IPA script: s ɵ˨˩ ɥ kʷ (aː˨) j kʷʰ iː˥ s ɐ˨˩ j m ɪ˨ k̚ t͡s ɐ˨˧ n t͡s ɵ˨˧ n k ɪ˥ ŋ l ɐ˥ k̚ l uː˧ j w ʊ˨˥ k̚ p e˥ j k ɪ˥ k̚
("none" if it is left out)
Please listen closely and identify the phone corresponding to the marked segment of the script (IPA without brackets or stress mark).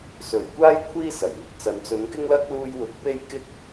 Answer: aː˥